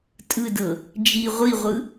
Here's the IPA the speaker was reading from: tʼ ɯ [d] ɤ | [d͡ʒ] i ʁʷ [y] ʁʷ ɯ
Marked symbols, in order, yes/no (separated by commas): yes, yes, no